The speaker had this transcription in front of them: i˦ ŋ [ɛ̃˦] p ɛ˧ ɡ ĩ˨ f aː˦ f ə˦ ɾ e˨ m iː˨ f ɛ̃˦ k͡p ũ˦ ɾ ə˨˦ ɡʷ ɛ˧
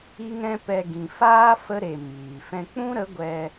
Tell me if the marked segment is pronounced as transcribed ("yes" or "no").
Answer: yes